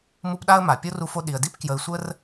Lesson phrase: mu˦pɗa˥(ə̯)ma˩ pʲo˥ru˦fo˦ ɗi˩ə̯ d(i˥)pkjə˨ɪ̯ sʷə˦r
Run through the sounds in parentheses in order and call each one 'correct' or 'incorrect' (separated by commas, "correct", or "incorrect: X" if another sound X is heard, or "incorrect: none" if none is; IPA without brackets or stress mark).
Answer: correct, incorrect: i˦